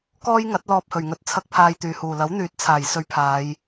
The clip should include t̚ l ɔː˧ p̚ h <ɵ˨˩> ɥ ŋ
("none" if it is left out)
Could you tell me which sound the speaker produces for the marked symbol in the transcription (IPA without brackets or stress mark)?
ɵ˨˩